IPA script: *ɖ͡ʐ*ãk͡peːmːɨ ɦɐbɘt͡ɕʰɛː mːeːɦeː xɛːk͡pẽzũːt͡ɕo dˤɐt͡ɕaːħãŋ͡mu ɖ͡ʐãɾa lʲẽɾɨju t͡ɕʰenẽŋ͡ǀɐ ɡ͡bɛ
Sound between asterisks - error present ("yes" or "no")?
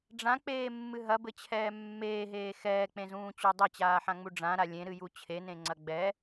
no